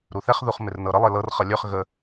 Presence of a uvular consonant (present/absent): present